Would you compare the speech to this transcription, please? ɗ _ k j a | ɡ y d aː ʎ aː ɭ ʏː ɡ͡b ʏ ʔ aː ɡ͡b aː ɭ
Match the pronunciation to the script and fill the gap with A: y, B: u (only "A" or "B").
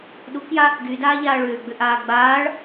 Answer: B